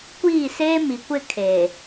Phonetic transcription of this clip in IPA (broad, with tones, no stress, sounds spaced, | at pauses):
kʷ iː˦˨ s eː˦ m i˨ kʷ ɪ˦˨ kʰ e˨